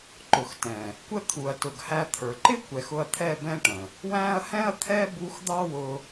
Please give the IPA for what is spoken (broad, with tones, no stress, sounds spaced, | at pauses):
ǃ ʊ˨ x t ɛ̃˨ | kʷ ə˦˨ t̪ʰ u˨ ɐ̯ t ʊ˨ ɡ h æ˧ t̪ʰ ə˞˨ ǃ ɪ˦ kʷ ɛ˨ x ʊ˧ ɐ̯ t̪ʰ ɛ˦˨ b ɛ̃˦ ʈ ə̃˨ | w æ̃˦ ɐ̯ h ɛ̃˦ ɐ̯ t̪ʰ ɛ˦ b u˧ x d̪ ɑ˦ w ʊ˧